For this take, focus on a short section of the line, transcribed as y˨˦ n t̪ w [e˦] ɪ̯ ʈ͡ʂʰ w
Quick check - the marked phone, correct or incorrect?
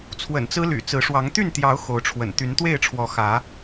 incorrect